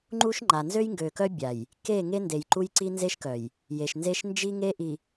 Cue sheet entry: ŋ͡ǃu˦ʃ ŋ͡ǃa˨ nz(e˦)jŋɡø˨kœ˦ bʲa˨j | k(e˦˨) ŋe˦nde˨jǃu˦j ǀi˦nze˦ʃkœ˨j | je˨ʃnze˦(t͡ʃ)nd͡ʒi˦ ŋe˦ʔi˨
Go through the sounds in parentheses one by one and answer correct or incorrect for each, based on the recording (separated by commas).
incorrect, correct, incorrect